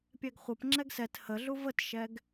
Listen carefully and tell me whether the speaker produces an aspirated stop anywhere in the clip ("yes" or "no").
no